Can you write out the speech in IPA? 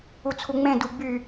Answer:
ut͡sʰuŋ͡mẽ duɡ͡by

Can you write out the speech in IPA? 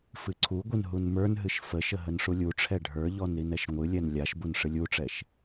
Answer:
fɨǀʰuɡʷɨn ɦunmə˞nɦɨʃ fəʃə ɦənʂulʲuʈ͡ʂʰɛ ɖʱə˞ʎɔn ɾinɛʃŋʷɨlʲɛn lʲaʃbun ʂɨlʲuʈ͡ʂɛʃ

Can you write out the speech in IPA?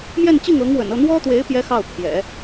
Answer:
mjɛ˥˧nt͡ɕi˥˩ŋɤ˧˥ŋwə̰˨˩n ɤ˥˩n̪wɔ˥t̪we˧˥ɪ̯ pjɛ˥xɑ˥˩ʊ̯ pʰjɛ̰˨˩˦

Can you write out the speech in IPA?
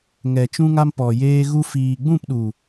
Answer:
ŋɛ˨t͡ʃũ˧ŋa˧mpɔ˨ jeː˧ ɣu˧ fiː˨ɡ͡bũ˦˨pɗu˨

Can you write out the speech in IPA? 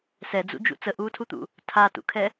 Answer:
sɛd͡zṵd͡ʒṵ t͡səʔuːtʰut̪ṵ | tʰatṵkʰɛ

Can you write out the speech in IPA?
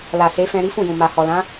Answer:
la˨se˨˦fɛ̃˧ ɾi˦fũ˦˨jũ˨ma˨ hɔ˨lã˨˦

